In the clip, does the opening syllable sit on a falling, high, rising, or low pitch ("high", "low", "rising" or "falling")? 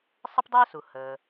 high